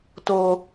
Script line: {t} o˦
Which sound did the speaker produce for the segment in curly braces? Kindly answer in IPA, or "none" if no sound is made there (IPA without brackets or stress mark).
t